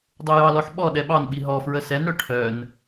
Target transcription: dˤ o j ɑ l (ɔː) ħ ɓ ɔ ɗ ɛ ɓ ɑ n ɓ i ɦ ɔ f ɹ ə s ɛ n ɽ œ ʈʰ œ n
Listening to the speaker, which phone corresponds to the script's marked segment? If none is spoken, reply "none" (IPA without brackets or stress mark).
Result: ɔ